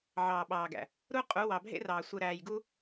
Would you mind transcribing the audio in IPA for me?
ʕɑː˨ɓɑː˨ɡæ̰˨ | ɾu˦qʼu˨˦ wɑ˨bʱḛ˦rɑː˨sʷɯ˨ ɾæː˨jɡu˦

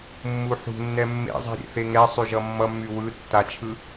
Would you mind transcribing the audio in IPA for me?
mːuħṳnːɛ mːḛzˤi̤ɾʲḛ θeŋɛ sˤyʒʌmːʌmːy wɯ tːat͡ʃʰɯ

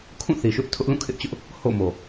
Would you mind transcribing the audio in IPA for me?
kʰũ˦˨θi˨ʃʊ˦ʔ tʰʊ˦ʔlũ˦˨kʰɪ˦ʔt͡ɕʊ˦ʔ | ho̰˦˨mo˨

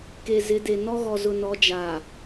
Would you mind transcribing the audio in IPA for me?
ke˨zɪ˨˦ de˨ nɔ˦ɣɔ˨zʊ˨nɔ˨˦ d͡ʒaː˨

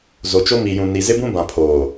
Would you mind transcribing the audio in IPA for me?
zo˨t͡ʃo˦ mi˨jũ˨ ni˨zɪ˦bũ˦bã˨ pʰoː˨

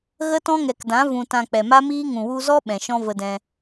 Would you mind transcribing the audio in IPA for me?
ɣə˦tɔ̃˦ŋɛ˨kdã˨˦ vũ˨tã˨ k͡pɛ˨ma˦miː˦ ŋũ˨wu˧zɔ˦ ɓɛ̃˨ʃɔ̃˦və˧dɛ̃˧

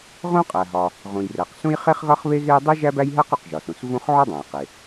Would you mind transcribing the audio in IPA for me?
ʁõ˥qʼæ˩ɦɒ˩ | ʁũ˩jræ˩qsũ˥j χe˥χɣɒ˥χβe˥ɣe˥j dˤi˥ ʒæ˥bæ˥jɦæ˥q u˩qʒɒ˩sũ˩s vũ˥χ ʕo˥dˤæ̃˩jqe˩

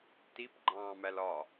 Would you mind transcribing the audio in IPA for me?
tip ɡ͡ǃɑ̃ːmælɒ

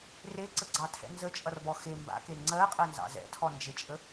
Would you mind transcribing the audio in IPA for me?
reǀəɡ͡ǀɑtʰɛ̰ nzət͡ʃʼʌrbɔ xe mba̰ke ŋ͡ǀɜqʼɜnzɑ̰ zɛ̰tʰɔnd͡ʒet͡ʃʼə

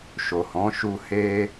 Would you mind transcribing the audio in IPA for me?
ʃo˨hɔ̃˨˦ʃu˧ he˦

